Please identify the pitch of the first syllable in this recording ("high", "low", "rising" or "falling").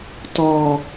low